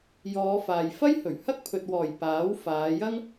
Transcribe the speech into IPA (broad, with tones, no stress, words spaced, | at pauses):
jɔː˨˧faː˨j fɐ˥jhɵ˨˩ɥ hɐ˥k̚pʰɵ˨t̚wɔː˨˩j paː˨˥w faː˨˧jɐ˥ŋ